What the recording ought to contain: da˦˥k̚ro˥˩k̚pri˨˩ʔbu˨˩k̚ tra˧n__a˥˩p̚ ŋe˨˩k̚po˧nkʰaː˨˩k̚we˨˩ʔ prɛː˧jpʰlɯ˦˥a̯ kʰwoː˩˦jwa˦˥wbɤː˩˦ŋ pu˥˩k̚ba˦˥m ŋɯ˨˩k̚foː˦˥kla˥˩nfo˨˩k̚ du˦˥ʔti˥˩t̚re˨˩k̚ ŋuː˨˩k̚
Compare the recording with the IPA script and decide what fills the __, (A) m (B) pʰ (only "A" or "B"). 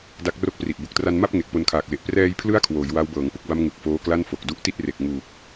A